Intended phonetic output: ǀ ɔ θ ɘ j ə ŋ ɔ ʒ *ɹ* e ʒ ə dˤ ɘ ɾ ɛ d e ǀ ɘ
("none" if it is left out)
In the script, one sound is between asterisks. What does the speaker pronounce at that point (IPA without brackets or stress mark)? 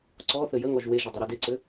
w